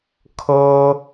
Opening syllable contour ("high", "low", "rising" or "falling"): high